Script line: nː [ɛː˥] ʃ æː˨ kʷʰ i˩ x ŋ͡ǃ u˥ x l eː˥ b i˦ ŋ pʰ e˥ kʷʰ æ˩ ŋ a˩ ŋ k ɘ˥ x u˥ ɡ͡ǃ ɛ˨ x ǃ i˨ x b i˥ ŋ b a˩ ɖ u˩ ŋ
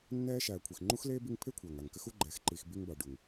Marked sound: correct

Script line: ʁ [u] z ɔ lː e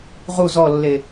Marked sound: correct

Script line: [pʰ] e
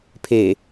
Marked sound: correct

